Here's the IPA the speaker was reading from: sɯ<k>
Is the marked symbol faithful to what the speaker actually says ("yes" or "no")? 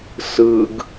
no